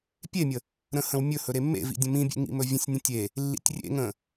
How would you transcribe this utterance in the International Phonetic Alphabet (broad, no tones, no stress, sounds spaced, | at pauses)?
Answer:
pʲ e mʲ ə | ɾ ə̃ h ə̃ w mʲ ɵ h ɵ ɾ e mː ḛ v ḭ dʲ ə̃ m ĩ bʲ ḛ ŋ ḭ m ɵ vʲ ə̃ sʲ nʲ ə̃ tʲ e | lː ḭ tʲ rʲ ḛ ŋ ə̃